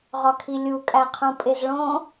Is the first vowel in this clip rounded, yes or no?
yes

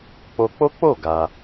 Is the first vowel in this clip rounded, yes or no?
yes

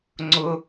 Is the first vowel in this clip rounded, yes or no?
yes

